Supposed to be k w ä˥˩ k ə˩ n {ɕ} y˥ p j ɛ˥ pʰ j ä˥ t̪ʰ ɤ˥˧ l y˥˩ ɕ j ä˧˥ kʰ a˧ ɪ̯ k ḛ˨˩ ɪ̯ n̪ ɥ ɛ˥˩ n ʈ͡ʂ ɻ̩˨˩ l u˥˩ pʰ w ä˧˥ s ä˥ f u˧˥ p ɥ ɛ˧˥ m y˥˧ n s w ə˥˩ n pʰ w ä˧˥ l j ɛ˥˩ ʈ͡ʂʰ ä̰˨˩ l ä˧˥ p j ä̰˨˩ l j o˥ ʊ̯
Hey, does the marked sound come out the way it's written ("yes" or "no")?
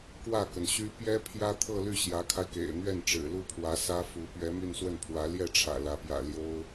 yes